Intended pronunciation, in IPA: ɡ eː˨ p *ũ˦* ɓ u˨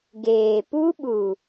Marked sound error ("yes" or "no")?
yes